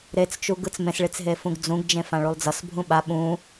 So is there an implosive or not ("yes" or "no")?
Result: yes